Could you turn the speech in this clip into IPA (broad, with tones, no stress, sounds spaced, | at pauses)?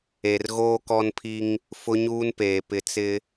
e˨ r ɣ oː˦ k ɔ˦ n pʰ i˦ ŋ | f ʊ˦ ɲ uː˦ n p eː˨ p ɪ˨ t͡s ɪ˦